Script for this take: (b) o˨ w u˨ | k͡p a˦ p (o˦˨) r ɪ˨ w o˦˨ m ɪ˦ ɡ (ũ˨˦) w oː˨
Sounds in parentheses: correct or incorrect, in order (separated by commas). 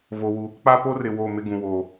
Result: incorrect, incorrect, incorrect